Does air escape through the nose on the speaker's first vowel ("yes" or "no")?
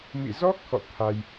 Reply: no